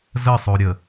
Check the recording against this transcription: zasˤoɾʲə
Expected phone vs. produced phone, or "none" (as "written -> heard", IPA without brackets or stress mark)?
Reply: a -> ə